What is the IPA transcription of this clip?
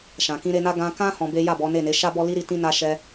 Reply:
ʃ ã˨ k ĩ˧ ɾ e˧ n a˦ ɡ ã˧ k ã˦ h ɔ̃˧ b e˦ j a˦˨ b ɔ˨˦ n e˦˨ n e˨˦ ʃ a˦ b ɔ˦ l i˦ ɾ i˧ t ĩ˦ n a˦ ʃ ɛ˧

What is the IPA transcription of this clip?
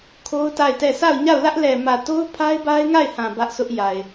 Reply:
kʰ o˦ ʊ̯ t a˦˨ ɪ̯ t ɛ˦˨ s a˦˨ ʊ̯ ɲ a˦˨ ʊ̯ l ä˦ ʔ l ɛ˨ m ä˨ t o˦ ʊ̯ pʰ a˦ ɪ̯ b a˦ ɪ̯ ŋ a˦˨ ɪ̯ h ã˨ b ä˦ ʔ s ʊ˦ ʔ j a˨ ɪ̯

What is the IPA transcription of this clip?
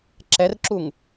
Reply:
ǁ ɛ r ǁ u ŋ

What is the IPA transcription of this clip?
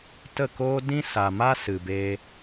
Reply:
t ə˦˨ k oː˦ d ĩ˦ s a˨ m a˦ s ɨ˨ b eː˧

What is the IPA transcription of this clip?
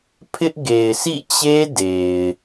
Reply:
pʰ ɪ˦ ʔ ɡ e˨ ɪ̯ s ḭ˦˨ t͡ɕ e˦ d e˨ ɪ̯

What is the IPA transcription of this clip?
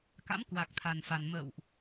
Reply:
k a̰˧˥ m k w a˨˩ k̚ t̪ʰ a˨˩ n f a˨˩ n m ə̰ː˧˨ w ʔ

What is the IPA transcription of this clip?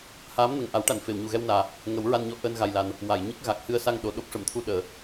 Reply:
h aː˧˥ m n ə˨˩ ŋ ʔ a˨˩˦ w ʈ a˨˩˨ n f e˨˩˨ w ɲ u˨˩ ɣ ɛ˧ w n aː˨˩ | ŋ ə˨˩˦ w ɹ a˧ n ɲ ɔ˧ ʔ əː˧ n ɣ a˨˩ j l a˨˩ n | w a˨˩˨ j ɲ ə˦˥ k̚ ɣ a˨˩ k̚ h ɨ˧ ə̯ s a˧ ŋ ɗ o˨˩ ɗ o˦˥ p̚ ʂ ə˨˩˨ m t̪ʰ u˧ ɗ əː˨˩˨

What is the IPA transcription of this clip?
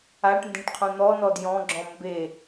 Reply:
a ʈ n d ẽ ʈ qʰ ũ n̪ ɔ n ɔ d j ɔ̃ ɡ͡ǁ ɔ̃ m b e

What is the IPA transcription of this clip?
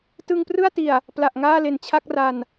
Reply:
t ɯ˧ ŋ p r ɯ˥˩ a̯ t i˨˩ a̯ | p l a˨˩ ʔ ŋ aː˥˩ l e˨˩ n t͡ɕʰ a˥˩ k̚ r a˧ n

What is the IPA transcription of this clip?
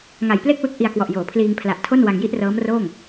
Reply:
ŋ a˨˩ j p l e˥˩ k̚ w ɯ˦˥ k̚ ʔ i˧ a̯ k w ɔ˨˩ ʔ j oː˩˦ pʰ l iː˧ ŋ pʰ l a˨˩ ʔ tʰ o˥˩ n w a˧ ŋ j i˥˩ ʔ r ɤː˦˥ m r oː˥˩ ŋ

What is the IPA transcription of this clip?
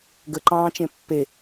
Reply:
ɡ ə ǃ ɑ̃ː t͡ʃ ẽ pː e

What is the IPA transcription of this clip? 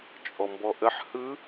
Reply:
t͡ʃʼ ɔ m b ɔ ʔ ə ħ h ɯ

